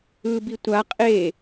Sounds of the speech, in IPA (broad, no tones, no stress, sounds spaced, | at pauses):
ɯ b i tʷ a qʼ e